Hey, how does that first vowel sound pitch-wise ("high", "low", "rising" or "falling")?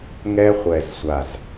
high